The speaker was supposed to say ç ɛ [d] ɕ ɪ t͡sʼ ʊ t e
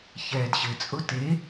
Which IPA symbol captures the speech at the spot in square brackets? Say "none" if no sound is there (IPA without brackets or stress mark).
d